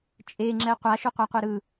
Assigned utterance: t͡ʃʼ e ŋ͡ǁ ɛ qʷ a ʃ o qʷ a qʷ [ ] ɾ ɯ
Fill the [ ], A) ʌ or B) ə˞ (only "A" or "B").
A